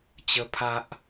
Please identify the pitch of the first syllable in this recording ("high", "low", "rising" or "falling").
high